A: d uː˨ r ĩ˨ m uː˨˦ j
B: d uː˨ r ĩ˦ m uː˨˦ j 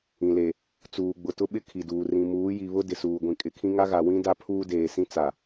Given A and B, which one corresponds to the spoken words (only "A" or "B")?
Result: A